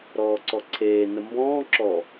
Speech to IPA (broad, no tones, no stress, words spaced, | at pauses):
ɾɔːǀɔǀʰeː nəmbɔ̃ː ǁɔ